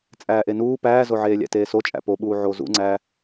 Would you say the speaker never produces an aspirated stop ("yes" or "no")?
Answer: yes